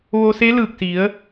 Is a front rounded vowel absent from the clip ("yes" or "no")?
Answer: yes